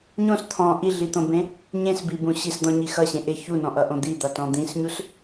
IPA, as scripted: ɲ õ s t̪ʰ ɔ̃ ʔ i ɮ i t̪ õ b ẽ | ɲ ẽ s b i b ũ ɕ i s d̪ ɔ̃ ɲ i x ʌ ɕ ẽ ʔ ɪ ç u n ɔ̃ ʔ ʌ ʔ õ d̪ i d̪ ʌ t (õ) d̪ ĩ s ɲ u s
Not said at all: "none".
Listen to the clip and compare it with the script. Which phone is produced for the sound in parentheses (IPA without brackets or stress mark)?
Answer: ɔ̃